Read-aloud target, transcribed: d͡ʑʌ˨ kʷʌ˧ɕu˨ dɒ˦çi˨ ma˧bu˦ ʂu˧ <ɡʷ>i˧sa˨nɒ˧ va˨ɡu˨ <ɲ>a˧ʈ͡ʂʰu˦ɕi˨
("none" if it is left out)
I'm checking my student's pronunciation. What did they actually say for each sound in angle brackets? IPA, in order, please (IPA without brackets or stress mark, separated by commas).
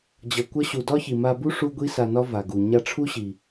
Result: ɡʷ, ɲ